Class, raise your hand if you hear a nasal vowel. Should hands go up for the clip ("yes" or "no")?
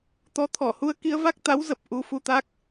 no